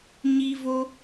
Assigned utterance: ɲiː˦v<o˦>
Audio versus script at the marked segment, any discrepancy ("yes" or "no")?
no